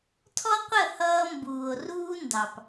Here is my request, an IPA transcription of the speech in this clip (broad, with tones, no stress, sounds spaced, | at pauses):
tʰ ɔ˦ qʷ ə˦˨ h ʌː˦ m b uː˨ o̯ r uː˦ n d ɑ˨ p